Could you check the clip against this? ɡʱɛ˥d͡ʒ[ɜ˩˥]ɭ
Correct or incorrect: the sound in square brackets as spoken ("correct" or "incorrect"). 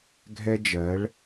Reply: correct